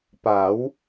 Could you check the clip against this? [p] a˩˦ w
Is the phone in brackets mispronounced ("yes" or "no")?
no